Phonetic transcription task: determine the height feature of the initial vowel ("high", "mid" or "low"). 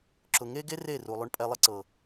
high